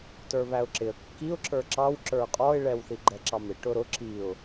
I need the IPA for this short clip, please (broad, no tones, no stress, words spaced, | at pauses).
tə˞βæʊ̯ǁɪə̯ kːiʊ̯ǁə˞ ǁɑwǁə˞ qʼɔɪ̯ɭɛw θiɡ͡ǃɛǁɑmɪ ʈʊɾʊ ǁiʊ̯